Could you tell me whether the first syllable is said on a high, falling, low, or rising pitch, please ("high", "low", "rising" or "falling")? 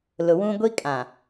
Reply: low